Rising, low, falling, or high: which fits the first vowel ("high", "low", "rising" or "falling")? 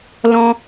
high